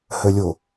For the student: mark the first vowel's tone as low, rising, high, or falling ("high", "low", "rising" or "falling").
low